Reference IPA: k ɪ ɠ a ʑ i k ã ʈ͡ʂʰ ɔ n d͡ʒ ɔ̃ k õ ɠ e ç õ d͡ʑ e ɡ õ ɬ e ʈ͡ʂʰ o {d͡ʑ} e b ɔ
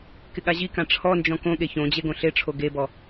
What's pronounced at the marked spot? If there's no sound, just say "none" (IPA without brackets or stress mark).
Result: ɡ